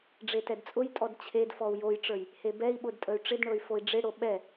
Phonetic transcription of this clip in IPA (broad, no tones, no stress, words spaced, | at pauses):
ɖ͡ʐetɛdt͡sʼʊjtʼɔd t͡ɕʰedfɔu̯ jojʈ͡ʂə˞j | hebɛi̯ɓʊd tʼəy̯ʈ͡ʂɪdɳɤy̯ foi̯ɖ͡ʐɪɽo ɓɛ